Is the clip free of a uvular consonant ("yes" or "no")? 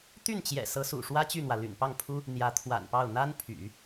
yes